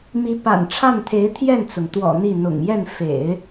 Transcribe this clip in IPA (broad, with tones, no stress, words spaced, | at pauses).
mi˧˥pa̰˨˩nʈ͡ʂʰa˥˩nt̪ʰe˧˥ɪ̯ t̪ʰjɛ˥˩nt͡sʊ˩ŋt̪wɔ̰˨˩ n̪i˥˩ n̪ʊ̰˨˩ŋ jɛ˥˩n fḛ˨˩˦ɪ̯